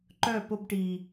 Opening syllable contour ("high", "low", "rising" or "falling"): falling